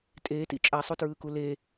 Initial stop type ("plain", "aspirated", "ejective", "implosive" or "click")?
ejective